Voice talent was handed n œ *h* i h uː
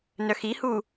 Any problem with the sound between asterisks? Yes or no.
yes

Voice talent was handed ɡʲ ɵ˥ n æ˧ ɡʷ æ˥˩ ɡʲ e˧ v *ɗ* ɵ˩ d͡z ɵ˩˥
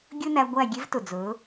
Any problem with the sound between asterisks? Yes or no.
yes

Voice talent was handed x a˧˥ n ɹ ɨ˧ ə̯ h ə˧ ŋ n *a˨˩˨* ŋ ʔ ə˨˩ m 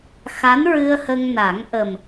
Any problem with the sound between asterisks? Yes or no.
yes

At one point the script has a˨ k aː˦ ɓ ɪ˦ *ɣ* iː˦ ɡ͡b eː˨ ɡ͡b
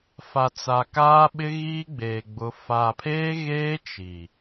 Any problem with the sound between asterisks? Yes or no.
no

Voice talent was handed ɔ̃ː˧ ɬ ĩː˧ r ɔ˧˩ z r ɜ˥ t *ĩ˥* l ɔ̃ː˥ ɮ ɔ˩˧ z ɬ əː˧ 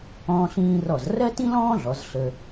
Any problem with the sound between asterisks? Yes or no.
no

